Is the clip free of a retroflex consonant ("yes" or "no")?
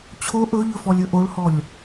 no